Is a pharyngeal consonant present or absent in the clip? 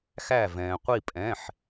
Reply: present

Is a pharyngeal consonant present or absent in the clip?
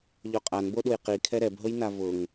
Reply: absent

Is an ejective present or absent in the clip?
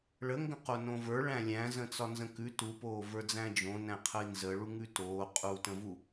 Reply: present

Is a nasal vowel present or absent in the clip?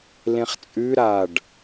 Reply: present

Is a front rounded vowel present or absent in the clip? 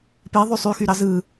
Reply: present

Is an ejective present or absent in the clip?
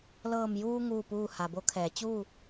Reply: absent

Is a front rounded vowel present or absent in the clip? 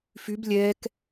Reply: present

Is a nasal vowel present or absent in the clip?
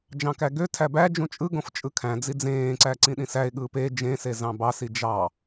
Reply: present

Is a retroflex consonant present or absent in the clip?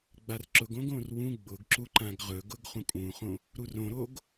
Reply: absent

